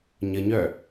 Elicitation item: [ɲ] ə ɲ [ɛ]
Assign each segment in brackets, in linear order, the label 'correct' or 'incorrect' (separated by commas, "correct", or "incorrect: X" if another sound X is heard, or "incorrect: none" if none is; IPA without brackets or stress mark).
correct, incorrect: œ